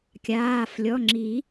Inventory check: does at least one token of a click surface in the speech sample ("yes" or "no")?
yes